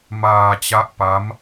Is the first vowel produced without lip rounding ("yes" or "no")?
yes